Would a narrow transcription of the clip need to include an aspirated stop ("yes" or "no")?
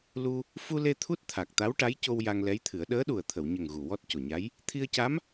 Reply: yes